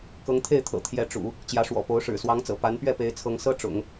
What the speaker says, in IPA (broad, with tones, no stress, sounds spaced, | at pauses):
k ɤ˧˥ ŋ t̪ʰ e˥˩ ɪ̯ t̪ʰ ɤ̰˨˩ t̪ʰ j ɛ˧˥ ʈ͡ʂ ṵ˨˩˦ | t͡ɕ j ä˧˥ ʂ w ɔ̰˨˩ p o˧˥ ʊ̯ ʂ ɻ̩˨˩ s w ɑ˧˥ ŋ t͡s ɤ̰˨˩ p a˧˥ n p ɥ ɛ˥˩ p e˧˥ ɪ̯ t͡sʰ ɤ˧˥ ŋ s ɤ˥ ʈ͡ʂ ʊ̰˨˩˦ ŋ